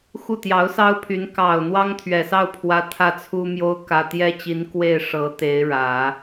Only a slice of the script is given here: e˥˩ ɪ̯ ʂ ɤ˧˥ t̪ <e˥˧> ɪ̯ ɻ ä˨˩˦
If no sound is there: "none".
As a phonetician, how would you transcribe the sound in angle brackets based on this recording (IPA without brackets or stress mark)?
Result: e˧˥